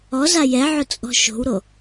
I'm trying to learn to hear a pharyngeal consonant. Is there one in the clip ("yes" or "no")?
yes